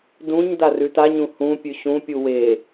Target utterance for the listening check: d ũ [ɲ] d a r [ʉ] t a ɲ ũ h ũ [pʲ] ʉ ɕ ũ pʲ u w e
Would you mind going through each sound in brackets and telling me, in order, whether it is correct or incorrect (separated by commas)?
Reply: correct, correct, correct